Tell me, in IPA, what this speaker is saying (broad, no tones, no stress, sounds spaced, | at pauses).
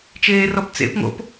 t͡ʃ eː r ɔ p t͡s ḛ p ŋ o̰ p